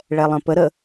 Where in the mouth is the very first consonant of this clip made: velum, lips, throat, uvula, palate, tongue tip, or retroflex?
retroflex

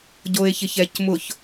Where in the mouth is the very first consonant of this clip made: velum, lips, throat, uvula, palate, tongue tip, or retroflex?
palate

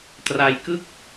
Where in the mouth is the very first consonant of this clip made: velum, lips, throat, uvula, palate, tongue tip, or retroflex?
tongue tip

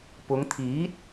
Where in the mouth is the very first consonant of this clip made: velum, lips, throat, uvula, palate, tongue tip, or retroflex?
lips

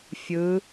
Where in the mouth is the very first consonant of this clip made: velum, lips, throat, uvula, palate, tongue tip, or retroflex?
lips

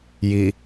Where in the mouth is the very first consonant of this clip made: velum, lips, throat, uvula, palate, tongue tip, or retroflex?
palate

